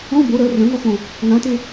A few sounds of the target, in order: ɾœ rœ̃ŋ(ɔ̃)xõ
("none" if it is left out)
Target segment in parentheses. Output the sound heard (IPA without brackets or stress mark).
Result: ɔ